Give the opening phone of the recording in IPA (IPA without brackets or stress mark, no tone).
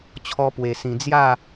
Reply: t͡ɕʰ